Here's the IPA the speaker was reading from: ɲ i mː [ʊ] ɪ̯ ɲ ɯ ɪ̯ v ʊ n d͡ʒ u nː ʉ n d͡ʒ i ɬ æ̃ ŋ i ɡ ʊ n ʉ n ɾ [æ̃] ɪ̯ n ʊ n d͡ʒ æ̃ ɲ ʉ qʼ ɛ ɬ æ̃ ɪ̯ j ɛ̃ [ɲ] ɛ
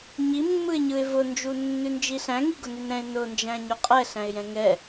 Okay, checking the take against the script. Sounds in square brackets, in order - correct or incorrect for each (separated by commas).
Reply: incorrect, incorrect, incorrect